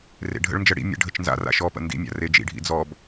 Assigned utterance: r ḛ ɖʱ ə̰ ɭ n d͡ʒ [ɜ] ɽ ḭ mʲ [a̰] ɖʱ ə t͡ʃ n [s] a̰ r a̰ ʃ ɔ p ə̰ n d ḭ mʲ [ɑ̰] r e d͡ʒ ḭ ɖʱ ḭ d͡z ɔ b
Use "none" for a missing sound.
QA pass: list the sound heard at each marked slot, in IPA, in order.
ɜ, ə̰, z, a̰

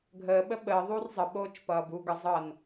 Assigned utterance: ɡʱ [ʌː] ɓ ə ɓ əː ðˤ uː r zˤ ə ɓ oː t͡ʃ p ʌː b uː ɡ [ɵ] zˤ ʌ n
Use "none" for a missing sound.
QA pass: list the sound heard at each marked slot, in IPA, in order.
əː, ə

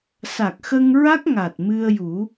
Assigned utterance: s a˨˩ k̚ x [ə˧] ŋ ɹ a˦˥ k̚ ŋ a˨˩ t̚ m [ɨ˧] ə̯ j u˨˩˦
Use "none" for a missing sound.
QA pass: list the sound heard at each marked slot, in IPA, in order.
ə˧, ɨ˧

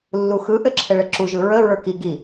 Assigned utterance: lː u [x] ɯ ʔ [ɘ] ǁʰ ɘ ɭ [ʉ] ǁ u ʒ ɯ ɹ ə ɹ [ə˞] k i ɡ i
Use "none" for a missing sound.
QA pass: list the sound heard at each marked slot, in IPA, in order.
x, ɘ, ɘ, ə˞

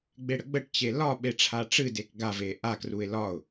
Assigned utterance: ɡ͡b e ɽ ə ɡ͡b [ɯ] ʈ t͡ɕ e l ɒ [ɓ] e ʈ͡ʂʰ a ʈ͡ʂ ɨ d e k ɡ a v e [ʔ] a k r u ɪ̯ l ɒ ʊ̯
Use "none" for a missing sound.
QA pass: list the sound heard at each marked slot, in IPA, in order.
ə, ɓ, ʔ

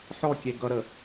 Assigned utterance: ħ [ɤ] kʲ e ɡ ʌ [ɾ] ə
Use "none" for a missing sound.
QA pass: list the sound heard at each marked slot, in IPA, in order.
ɔ, ɾ

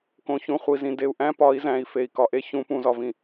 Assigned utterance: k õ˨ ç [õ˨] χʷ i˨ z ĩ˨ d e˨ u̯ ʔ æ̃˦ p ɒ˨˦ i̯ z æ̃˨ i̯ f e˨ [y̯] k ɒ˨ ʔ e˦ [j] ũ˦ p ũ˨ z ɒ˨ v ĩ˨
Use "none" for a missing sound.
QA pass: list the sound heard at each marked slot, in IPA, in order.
ũ˨, i̯, ç

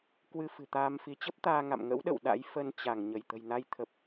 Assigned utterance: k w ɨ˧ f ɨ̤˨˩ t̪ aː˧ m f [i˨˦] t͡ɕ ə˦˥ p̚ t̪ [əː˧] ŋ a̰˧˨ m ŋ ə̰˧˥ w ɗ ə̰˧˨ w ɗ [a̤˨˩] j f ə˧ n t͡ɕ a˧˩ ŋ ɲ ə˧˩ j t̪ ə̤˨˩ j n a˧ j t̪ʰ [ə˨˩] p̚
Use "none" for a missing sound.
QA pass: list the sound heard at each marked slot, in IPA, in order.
i˨˦, aː˧, a̰˧˥, ə˨˩

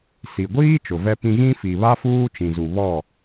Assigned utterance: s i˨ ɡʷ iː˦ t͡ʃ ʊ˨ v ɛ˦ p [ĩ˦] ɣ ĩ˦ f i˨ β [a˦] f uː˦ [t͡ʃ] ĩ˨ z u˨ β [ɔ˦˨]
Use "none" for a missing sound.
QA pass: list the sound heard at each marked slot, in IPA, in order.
ĩ˦, a˦, t͡ʃ, ɔ˦˨

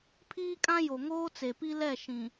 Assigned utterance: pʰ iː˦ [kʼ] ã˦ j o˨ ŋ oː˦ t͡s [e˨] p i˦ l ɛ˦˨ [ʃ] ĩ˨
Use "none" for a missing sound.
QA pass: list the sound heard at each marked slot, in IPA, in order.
kʼ, e˨, ʃ

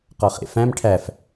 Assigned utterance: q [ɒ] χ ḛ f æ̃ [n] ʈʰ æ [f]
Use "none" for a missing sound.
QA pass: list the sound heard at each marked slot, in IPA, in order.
ɒ, m, f

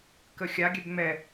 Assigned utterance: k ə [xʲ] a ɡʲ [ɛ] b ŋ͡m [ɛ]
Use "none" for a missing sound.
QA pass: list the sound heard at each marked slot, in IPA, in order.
xʲ, ɛ, ɛ

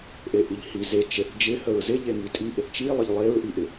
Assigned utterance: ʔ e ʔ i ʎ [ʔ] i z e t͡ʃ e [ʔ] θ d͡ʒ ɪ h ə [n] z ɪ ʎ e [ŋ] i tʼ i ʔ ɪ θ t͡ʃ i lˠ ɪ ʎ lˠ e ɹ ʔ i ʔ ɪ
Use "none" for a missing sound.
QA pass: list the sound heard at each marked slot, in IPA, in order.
h, none, ɹ, ŋ

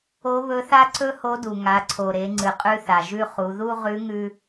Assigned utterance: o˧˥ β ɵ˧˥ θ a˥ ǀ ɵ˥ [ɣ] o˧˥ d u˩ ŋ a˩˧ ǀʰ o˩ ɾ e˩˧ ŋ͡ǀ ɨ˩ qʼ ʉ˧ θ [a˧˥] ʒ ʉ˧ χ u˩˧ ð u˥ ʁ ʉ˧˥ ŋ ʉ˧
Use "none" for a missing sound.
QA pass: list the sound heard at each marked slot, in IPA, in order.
h, a˩

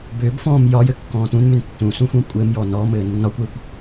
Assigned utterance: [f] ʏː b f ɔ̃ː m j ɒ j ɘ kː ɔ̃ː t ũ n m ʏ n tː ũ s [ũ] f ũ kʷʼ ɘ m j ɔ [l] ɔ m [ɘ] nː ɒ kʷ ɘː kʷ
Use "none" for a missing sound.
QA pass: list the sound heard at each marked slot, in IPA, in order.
b, ũ, n, ɘː

